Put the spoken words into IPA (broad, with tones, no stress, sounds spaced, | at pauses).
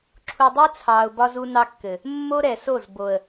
ǁʰ u˨ dˤ u˦ t͡sʰ ɑː˨ ʊ̯ b ɒ˦ z u˦ n ɑ˦ kː ɘ˨ | mː o˦ ɾ ɛ˨ s o˦˨ z b o˨ ə̯